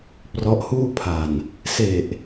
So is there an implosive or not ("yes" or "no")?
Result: no